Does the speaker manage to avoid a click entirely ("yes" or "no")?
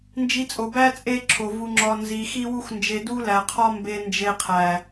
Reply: no